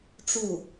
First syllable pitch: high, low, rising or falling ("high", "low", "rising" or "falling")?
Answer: falling